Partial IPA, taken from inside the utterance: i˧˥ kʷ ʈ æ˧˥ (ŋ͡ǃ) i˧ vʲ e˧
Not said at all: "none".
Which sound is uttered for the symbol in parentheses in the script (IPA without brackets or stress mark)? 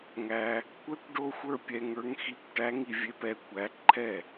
ŋ